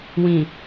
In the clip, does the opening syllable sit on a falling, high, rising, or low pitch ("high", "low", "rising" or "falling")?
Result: low